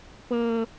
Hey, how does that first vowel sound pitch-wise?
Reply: high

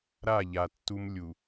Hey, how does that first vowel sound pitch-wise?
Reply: falling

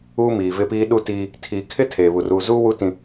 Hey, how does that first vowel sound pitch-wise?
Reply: high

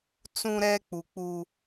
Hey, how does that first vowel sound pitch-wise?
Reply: high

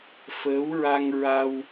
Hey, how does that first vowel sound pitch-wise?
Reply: rising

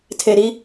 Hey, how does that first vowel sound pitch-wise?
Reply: low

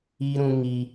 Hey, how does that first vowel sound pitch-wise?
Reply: high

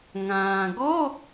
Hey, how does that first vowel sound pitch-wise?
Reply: low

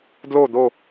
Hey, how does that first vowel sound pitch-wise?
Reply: falling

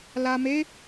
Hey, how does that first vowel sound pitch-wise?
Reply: low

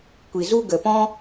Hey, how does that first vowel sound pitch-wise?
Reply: low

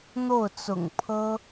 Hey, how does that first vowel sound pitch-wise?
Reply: falling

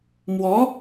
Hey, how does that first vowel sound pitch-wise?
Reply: rising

